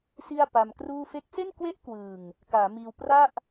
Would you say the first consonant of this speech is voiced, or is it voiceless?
voiceless